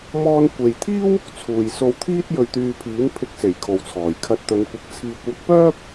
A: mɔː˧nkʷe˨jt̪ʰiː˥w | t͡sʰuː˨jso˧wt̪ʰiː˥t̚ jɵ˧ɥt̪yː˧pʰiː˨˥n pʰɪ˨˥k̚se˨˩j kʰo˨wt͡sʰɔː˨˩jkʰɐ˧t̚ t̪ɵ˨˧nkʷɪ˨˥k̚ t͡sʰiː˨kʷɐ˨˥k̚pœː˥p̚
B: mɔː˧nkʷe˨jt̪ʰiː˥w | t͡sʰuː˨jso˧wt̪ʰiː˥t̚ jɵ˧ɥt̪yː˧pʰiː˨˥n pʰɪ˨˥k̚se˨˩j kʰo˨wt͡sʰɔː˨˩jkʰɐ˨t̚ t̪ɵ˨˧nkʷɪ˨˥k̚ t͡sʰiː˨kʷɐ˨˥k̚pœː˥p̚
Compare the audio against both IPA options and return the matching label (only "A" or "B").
A